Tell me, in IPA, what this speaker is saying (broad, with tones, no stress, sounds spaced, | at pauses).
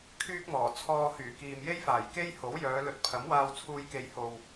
kʰ yː˥ k̚ m ɔː˨˩ t͡sʰ ɔː˧ h yː˨˩ k iː˨ m j e˥ j f aː˨˩ j k e˥ j h o˨˥ w j œː˨˧ l ɵ˧ t̚ pʰ ɐ˨˥ m w aː˧ w t͡sʰ uː˧ j k e˨ j h o˨ w